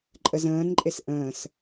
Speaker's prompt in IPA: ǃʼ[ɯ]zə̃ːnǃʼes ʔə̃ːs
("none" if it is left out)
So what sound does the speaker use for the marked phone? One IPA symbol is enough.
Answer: ə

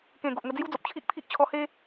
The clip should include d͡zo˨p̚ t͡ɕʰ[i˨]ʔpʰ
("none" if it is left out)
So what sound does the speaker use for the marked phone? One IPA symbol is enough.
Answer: i˦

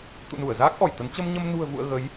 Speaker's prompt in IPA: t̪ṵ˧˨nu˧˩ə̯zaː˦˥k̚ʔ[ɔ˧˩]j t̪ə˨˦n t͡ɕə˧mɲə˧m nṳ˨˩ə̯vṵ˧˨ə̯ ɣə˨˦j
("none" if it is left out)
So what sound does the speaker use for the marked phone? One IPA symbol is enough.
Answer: ɔ˧˩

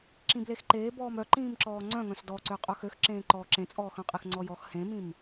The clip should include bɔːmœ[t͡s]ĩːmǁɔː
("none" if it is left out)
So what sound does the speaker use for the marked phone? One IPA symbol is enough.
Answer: ǃ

